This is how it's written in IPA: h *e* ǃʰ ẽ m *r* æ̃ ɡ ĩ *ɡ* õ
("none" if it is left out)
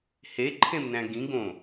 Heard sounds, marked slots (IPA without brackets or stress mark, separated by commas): e, n, ɡ